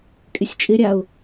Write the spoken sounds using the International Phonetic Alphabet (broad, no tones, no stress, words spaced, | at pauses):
kʼɪsʲt͡ʃʼɪɾʲaʊ̯